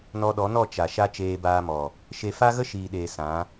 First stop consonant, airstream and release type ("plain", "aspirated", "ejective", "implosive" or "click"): implosive